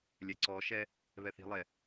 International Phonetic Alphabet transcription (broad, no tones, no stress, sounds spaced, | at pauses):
lʲ ɛ ǀ ɔ ʃ ɛ | β ɛ θ i̤ lˠ ɛ